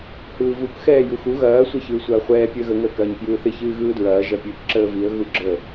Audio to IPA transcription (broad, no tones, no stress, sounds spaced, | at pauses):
h ɯː v u k x ɛː j u x u ɣ ɐː sʷ ɐ ç ɯː sʷ ɐː χʷ ɛː pʲ əː ɣ ə ŋ əː k ɐː ɲ k j ɯː θ ɪ ç ɨː ɣ ɯː d ɹ ɐː ʒ ɐ pʲ ɨː k ǁ əː v i ə̯ ɣ u ɡ͡ǁ ə